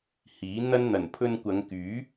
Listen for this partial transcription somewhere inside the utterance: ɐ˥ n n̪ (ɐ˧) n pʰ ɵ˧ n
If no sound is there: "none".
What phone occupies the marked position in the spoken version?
ɐ˨˩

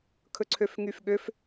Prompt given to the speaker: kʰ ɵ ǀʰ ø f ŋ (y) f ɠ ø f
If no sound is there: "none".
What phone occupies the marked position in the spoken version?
y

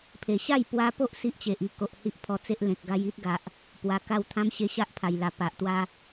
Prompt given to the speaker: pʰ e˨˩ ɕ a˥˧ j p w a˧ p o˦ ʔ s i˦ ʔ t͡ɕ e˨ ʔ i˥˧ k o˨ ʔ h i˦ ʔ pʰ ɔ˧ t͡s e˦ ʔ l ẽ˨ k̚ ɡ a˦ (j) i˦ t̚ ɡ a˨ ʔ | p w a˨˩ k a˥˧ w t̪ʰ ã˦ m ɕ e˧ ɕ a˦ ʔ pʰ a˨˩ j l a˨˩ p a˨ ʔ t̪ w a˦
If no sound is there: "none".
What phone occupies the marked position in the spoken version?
j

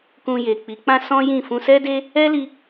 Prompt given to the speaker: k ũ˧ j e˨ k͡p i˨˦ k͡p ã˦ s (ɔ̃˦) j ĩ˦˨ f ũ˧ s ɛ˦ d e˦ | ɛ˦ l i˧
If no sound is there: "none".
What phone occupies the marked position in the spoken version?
ɔ̃˦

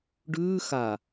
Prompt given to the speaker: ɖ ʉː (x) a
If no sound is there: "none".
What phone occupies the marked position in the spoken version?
x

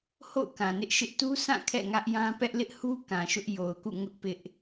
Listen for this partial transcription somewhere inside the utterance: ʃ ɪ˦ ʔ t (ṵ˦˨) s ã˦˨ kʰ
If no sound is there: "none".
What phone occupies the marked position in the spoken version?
u˦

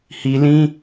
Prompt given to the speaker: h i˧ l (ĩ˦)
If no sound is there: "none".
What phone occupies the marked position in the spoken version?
ĩ˦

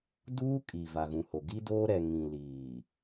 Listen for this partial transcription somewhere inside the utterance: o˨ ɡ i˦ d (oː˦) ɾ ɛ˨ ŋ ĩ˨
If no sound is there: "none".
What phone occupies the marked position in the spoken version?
oː˦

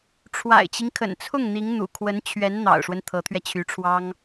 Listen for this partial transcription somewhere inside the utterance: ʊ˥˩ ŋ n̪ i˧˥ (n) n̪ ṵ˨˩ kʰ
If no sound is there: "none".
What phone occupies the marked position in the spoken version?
ŋ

